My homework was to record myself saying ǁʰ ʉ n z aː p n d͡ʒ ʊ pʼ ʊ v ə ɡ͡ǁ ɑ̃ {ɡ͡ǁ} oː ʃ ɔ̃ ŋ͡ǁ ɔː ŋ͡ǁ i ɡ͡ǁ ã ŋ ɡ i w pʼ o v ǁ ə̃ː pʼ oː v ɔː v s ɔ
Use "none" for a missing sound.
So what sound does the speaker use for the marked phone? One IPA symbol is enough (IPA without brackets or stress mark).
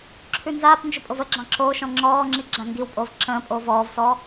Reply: ǁ